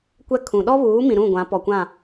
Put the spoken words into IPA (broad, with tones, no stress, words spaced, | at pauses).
kʷɛ˦ kʰũ˨ ɗɔ˦βuː˨˦mĩ˨ ɾũ˦˨ ɡʷã˨˦pɔ˨kʷã˦˨